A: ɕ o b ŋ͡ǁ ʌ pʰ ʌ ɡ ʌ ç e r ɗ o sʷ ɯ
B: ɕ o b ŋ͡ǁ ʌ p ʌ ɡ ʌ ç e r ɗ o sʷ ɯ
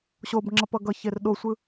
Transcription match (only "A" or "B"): B